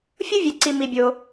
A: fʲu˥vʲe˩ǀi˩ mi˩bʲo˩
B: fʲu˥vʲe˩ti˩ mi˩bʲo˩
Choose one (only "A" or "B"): A